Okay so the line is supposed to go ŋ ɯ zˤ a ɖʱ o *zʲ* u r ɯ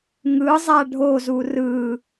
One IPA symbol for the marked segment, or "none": z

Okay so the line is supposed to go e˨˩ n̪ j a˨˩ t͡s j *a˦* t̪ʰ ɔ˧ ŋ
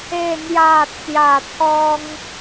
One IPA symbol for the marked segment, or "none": a˨˩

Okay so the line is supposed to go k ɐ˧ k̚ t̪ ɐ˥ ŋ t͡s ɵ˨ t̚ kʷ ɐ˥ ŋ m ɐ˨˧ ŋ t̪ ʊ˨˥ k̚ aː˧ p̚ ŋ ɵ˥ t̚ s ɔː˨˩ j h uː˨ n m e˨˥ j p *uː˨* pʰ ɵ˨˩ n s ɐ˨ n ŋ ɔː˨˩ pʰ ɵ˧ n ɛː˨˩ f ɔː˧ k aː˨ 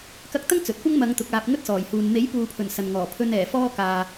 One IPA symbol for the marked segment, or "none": uː˨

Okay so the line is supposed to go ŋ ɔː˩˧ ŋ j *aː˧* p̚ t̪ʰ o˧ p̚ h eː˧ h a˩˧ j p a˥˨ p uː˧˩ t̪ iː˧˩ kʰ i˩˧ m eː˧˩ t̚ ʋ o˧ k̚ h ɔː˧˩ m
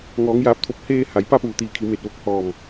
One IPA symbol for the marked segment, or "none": aː˧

